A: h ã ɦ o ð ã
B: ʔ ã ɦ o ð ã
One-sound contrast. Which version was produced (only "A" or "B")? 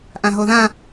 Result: B